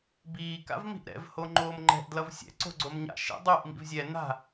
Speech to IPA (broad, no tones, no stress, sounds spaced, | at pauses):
b iː k a̰ v m i̤ ʔ ɾ ɛ̰ v h o ŋ͡ǃ oː m ŋ͡ǃ ɛ̤ ʔ d l ʌ v sʲ ɛ̰ ǀ o̤ ɡ͡ǀ o m ɲ a̰ ʃ ḛ dˤ u ʔ m ḭ v zʲ ɛ n a̤